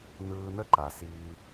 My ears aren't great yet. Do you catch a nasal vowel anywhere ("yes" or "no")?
no